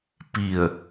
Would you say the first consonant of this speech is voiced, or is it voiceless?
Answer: voiceless